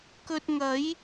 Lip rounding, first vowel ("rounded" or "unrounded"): rounded